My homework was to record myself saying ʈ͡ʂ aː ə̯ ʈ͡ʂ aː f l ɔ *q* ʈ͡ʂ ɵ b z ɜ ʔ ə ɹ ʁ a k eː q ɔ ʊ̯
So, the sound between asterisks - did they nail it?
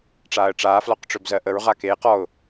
yes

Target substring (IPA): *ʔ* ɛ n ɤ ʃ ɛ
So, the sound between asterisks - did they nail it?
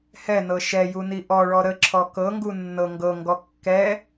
no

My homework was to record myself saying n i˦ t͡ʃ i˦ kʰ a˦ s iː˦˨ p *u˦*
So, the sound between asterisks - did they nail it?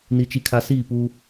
yes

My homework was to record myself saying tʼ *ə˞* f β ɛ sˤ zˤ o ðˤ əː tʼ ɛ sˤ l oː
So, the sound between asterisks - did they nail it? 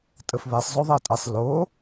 no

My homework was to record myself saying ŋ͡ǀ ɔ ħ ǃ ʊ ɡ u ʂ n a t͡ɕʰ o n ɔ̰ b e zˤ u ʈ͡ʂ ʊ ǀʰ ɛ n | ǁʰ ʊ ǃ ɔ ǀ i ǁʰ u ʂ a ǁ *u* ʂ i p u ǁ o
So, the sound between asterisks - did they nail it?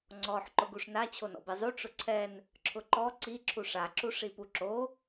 yes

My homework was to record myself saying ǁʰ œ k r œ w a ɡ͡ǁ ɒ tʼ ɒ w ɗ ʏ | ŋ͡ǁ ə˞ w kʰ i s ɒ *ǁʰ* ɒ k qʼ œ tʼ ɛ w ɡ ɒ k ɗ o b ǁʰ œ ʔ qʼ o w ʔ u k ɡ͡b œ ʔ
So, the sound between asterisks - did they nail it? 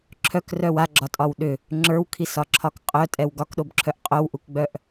yes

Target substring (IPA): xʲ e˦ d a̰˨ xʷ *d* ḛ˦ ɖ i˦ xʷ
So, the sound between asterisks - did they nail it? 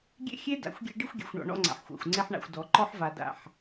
no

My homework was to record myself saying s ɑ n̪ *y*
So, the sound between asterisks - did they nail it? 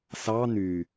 yes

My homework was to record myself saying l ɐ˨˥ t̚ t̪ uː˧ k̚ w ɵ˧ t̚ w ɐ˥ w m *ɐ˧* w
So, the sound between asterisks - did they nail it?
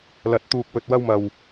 yes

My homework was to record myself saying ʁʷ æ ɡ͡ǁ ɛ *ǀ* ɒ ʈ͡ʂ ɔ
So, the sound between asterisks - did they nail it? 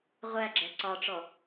yes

